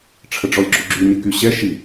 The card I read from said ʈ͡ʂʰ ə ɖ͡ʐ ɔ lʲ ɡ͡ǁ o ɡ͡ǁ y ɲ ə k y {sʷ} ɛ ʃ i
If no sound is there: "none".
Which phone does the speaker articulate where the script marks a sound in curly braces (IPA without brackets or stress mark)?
ɕ